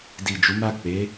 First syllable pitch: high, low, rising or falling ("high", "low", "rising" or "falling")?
low